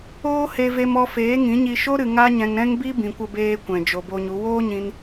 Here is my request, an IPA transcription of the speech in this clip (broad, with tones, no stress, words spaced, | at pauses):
oː˦he˧ve˧m ɔ˧feː˨˦ŋĩ˨˦ɲi˧ ʃo˦ ɾɨ˧ŋa˦ɲɛ̃˧ŋ ɾɛ̃˦ŋbi˦ bĩ˨kʷə˧beː˧ kʷɛ̃˨d͡ʒo˨bo˧ɲu˨˦ woː˦ɲĩ˧n